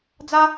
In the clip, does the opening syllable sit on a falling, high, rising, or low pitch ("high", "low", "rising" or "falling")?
high